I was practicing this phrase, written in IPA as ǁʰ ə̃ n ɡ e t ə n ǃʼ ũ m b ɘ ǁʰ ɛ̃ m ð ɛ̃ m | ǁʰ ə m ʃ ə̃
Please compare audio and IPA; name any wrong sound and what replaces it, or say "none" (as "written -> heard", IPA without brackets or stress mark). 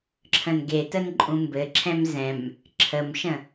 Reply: ð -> z